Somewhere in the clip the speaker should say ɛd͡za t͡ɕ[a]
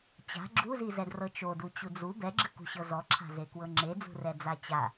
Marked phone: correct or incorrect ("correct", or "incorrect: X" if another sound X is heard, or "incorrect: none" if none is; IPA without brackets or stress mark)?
correct